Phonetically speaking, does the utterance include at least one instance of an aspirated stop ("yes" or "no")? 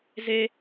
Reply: no